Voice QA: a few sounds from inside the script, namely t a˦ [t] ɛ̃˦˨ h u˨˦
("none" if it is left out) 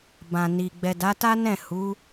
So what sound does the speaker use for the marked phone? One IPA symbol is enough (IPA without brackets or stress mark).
n